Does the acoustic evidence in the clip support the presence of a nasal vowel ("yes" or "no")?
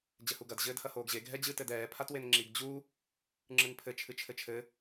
no